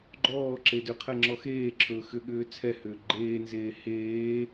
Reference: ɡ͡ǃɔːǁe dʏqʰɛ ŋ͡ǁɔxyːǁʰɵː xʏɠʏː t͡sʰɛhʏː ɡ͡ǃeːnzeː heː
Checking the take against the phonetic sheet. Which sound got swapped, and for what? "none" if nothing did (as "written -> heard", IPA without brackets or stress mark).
yː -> eː